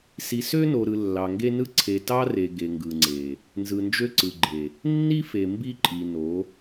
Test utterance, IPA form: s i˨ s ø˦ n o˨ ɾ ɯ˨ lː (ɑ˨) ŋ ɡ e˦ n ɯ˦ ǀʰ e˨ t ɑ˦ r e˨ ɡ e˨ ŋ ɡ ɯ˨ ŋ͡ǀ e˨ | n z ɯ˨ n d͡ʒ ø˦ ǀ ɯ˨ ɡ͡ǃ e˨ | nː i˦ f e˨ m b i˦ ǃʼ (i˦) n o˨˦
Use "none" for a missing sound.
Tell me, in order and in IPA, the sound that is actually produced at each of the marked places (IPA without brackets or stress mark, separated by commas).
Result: ɑ˨, i˨